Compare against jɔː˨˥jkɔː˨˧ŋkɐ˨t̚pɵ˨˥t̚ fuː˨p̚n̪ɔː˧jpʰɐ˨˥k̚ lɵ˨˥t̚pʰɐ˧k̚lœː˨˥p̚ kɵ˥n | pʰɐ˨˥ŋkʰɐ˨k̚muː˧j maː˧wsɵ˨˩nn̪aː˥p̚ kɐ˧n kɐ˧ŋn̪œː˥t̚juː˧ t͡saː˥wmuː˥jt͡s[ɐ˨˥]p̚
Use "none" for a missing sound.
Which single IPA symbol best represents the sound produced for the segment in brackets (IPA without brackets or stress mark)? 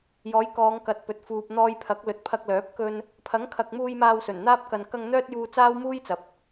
ɐ˨˥